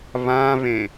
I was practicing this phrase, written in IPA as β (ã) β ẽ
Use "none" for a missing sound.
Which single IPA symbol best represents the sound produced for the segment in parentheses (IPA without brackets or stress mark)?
ã